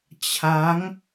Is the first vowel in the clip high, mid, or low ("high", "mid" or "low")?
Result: low